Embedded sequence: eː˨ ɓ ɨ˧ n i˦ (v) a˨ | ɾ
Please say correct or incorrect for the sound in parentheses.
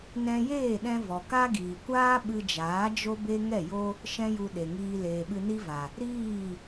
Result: correct